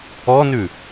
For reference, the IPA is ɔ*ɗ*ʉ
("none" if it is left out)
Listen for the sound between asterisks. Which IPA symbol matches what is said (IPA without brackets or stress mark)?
n